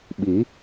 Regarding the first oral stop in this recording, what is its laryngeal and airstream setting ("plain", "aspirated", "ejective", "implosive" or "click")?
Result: implosive